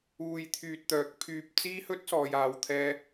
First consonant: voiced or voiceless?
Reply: voiced